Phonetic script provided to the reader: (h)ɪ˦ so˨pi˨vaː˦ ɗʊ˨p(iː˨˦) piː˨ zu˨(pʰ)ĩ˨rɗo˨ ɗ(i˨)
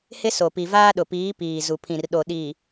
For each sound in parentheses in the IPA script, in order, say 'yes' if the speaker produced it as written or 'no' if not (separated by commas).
yes, yes, yes, yes